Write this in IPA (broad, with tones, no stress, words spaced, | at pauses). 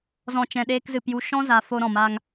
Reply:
zɔ̃˨t͡ʃɛ̃˨ ɗeː˧kzɨ˨pju˧ ʃɔ̃˦za˨ fo˦ɾɔ̃˨ma˦ŋ